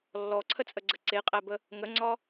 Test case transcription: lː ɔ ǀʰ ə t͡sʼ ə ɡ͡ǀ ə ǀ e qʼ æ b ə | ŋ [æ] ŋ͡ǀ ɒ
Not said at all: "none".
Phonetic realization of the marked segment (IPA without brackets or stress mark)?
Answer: ə